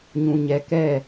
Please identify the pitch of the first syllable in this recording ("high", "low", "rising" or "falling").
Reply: low